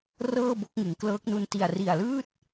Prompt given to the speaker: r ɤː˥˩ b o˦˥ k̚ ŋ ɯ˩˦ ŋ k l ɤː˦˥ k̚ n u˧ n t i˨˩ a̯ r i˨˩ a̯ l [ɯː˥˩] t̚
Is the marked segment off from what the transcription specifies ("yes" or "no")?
no